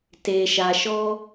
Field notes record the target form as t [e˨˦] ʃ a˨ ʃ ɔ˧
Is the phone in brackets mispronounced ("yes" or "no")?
yes